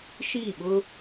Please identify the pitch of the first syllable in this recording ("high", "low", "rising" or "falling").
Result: falling